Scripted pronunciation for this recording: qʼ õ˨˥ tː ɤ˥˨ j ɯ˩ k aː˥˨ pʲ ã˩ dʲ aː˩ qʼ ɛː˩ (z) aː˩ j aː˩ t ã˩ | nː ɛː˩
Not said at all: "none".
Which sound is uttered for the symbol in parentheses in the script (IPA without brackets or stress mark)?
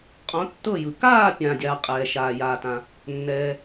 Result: ʃ